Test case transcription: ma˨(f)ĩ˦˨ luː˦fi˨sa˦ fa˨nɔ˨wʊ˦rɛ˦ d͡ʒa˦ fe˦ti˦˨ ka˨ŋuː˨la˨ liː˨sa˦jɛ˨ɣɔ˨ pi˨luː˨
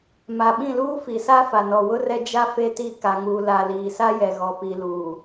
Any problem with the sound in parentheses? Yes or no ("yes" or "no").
yes